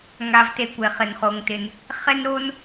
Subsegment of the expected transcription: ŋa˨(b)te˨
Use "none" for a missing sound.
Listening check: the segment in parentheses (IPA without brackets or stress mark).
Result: v